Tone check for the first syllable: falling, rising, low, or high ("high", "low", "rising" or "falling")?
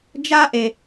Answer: high